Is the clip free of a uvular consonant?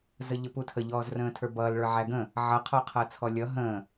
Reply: no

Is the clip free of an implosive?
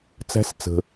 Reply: yes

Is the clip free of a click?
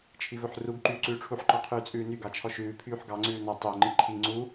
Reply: no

